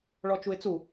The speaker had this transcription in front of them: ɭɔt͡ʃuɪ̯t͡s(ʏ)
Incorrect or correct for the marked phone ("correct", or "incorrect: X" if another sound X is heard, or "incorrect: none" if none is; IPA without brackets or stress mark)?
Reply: incorrect: u